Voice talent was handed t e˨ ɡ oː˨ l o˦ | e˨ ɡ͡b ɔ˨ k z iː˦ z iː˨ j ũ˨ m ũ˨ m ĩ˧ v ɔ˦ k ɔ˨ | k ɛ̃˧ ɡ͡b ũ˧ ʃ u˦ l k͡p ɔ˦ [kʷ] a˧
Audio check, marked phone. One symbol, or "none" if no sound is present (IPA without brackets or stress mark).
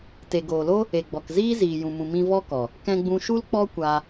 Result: kʷ